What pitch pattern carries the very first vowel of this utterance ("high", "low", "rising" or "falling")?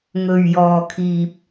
low